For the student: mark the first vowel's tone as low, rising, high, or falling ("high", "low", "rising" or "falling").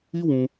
high